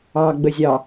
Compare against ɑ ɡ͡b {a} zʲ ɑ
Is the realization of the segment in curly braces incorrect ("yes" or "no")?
yes